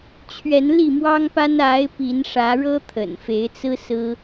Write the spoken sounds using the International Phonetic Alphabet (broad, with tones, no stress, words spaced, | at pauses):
t͡ɕʰɥɛ˨˦nli˥˨mwɑ˦ŋpa˦n a˨˦ɪ̯ pi˨˦nʂä˨˦ɻɤ˦ t̪ʰə̰˨˩nfe˨˦ɪ̯t͡sɹ̩˦ sɹ̩˦